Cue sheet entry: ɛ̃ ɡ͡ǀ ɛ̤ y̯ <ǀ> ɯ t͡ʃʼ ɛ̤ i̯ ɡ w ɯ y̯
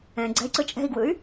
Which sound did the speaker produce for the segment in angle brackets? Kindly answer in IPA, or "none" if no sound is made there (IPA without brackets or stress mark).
ǀ